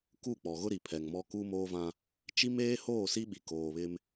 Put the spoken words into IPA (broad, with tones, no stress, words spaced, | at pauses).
ku˦˨k͡pɔ˨ɣʊ˦ ɾi˨pʰɛ˨ŋmɔ˦ ku˦moː˦vã˦ | t͡ʃi˦meː˦hoː˦˨ si˦ɓi˨ koː˨βɪ˦m